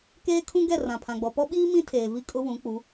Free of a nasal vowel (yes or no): no